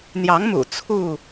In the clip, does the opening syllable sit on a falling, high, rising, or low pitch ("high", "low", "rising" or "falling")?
rising